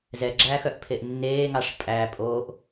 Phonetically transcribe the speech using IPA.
z ɛ ɡ͡ǁ æː x œ ʔ pʰ e ʔ nː eː ŋ ɑ ʂ pʼ æ pʼ o ʔ

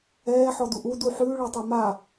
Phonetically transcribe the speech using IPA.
ɛː ħ ɔ d u ʔ u d u ħ ʉː ɭ ɛ tˤ ɛ m a

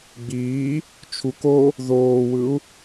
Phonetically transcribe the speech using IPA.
ɡ͡b iː | t͡ʃʰ u k o | ð oː w ɯ u̯

